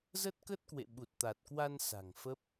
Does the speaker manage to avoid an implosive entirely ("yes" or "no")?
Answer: no